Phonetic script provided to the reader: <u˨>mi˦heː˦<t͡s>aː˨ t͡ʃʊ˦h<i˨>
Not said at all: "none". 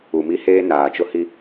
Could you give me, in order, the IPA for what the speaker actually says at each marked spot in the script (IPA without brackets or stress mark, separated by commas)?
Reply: u˨, n, i˦